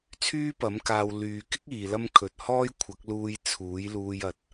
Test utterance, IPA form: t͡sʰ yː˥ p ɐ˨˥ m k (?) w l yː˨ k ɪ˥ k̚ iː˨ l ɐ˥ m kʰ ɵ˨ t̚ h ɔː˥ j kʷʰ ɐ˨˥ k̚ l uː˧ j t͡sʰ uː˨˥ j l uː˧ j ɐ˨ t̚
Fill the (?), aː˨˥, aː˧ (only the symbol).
aː˧